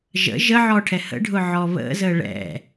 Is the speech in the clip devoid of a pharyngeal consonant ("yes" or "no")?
no